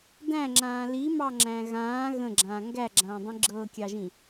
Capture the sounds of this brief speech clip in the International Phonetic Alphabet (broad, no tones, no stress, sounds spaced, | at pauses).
d æ̃ ŋ͡ǁ ãː l i m ɑ ŋ͡ǁ æ̃ ɣ ãː ɣ ə̃ ɡ͡ǁ ãː ŋ ɡ æ ɡ͡ǁ ãː dˤ ĩ ɡ͡ǁ ɤː kʲ ɑ ʒ ĩ